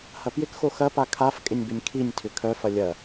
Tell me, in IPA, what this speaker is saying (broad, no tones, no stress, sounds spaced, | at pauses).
h ɐ p j ɪ k x o x ɐ p a kʰ a f kʼ ɪ nʲ b ɪ nʲ kʰ i nʲ tʰ ʏ kʰ œ f ɐ lʲ ɐ